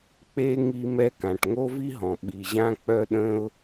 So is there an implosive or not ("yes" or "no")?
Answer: yes